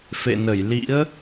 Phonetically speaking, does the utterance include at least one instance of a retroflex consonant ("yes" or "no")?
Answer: no